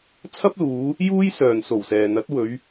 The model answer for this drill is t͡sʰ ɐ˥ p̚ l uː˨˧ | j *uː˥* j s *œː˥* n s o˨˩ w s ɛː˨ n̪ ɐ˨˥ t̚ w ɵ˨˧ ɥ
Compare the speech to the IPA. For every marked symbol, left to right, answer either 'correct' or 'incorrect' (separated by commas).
correct, incorrect